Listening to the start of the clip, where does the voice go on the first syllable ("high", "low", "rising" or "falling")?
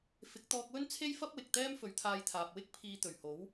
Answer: rising